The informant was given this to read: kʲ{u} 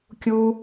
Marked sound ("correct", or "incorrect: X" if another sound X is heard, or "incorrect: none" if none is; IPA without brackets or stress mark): correct